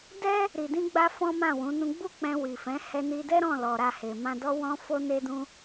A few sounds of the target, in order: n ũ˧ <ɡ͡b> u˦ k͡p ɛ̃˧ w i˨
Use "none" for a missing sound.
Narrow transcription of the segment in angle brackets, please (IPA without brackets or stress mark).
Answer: ɡ͡b